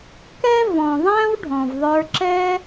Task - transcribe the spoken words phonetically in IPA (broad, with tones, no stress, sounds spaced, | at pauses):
k ɛ˦ v ɔ̃˨ ðˤ æ̃˦ w ɖʱ ɔ̃˨ v ðˤ ə˞˧ ǁ ɛ˦